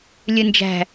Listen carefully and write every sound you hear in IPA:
lʲ ɯ n d͡ʒ æ̤

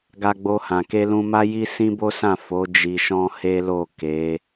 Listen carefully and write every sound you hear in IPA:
ɡ a˧ ɡ͡b o˧ h ã˨ k e˧ l ũ˧ m a˦ j i˦ s ĩ˦ b o˦ s ã˦˨ f o˨˦ d͡ʒ i˧ ʃ ɔ̃˦ h e˦ l o˦˨ k e˨˦

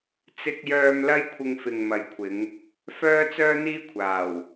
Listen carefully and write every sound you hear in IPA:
t͡s ɪ˧ k̚ j œː˧ m l ɐ˥ j kʷʰ ɪ˧ ŋ f ɪ˨ ŋ m ɐ˨ j kʷʰ ɪ˨˧ ŋ | f œː˥ t͡s œː˥ n̪ iː˥ kʷʰ aː˨˩ w

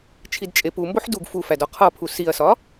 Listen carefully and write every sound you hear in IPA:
t͡ʃʰ i d t͡ʃʼ e p u m b o ħ d u ɡ f u f æ d ɒ qʰ ɒ pʰ u s i ɐ̯ s ɒ

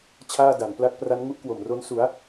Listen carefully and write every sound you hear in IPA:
t͡ɕʰ aː˥˩ d a˩˦ n p l a˦˥ k̚ p r a˦˥ n ŋ u˥˩ ʔ k w o˨˩ m r o˦˥ n s u˩˦ a̯

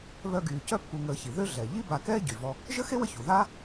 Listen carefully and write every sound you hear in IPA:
β œ˦ ɡ yː˨ c œ˦ pː u˨ ŋ əː˨ ç i˩ ð ø˦ ɮ ɛ˩ ʎ i˥ b a˨ k ɛː˥ ɟ y˩ v ɔ˦ | ʒ ə˥ x e˥ w ə˦ ç u˩ ð aː˥

